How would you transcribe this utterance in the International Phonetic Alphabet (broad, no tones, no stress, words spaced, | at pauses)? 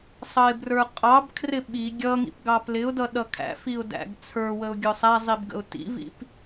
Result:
sˤʌɪ̯brə˞qʼɑbkʰrɪ ɓi ɡʲʌŋḭp ɡɑplɪʊ̯dʌ ɗʌkʰæ̰fiʊ̯ dæ̰ɡt͡sʰə˞wəʊ̯ ɡʲʊsˤæzˤib ɡə̰ʊ̯tḭvḭp